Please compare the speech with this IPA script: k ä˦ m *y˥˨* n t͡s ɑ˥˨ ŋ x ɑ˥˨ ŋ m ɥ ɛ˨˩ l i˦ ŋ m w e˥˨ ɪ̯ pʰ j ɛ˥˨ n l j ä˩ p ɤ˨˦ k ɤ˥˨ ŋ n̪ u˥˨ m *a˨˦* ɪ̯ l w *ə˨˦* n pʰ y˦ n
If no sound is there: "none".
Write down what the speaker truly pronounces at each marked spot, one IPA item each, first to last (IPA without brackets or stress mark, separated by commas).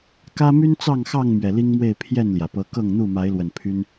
y˦, a˨˦, ə˨˩